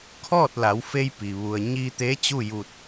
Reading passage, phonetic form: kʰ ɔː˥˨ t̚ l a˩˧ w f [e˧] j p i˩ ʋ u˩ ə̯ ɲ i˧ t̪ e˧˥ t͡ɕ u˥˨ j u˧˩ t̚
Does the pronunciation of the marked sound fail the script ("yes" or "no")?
no